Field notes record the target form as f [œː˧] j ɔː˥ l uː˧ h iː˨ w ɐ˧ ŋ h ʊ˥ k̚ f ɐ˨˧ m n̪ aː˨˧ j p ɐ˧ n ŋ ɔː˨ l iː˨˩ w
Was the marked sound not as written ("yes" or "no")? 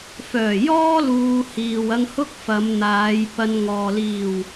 yes